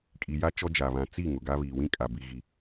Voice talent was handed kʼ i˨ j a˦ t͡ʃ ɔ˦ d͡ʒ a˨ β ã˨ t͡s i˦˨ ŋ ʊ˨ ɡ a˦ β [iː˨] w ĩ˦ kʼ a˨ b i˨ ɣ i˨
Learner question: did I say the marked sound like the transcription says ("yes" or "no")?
yes